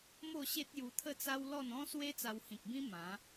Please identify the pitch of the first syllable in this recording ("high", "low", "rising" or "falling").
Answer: falling